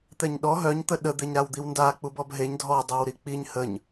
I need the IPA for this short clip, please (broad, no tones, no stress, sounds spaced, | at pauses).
t̪ ɛ ɲ ɗ ɔ ɦ œ ɲ t̪ ə ɗ ə d̪ e ɲ ɾ a w d̪ i w n d a k͡p u b ɔ b ɦ e ɲ dʱ ɔ dˤ e w ɾ i k͡p i ɲ h ə ɲ